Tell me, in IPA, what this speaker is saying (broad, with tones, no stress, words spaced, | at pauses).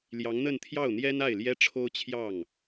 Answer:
ljɑ˧˥ŋn̪ə˥˧nt̪ʰjɑ˥˩ʊ̯n̪jɛ˥n a˥˩ɪ̯ljɛ˥ʈ͡ʂʰo˥ʊ̯t͡ɕʰjɑ˥˩ŋ